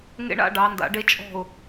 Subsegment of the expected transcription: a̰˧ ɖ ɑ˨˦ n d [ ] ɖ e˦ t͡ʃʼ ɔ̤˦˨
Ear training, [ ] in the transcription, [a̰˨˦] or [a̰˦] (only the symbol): a̰˨˦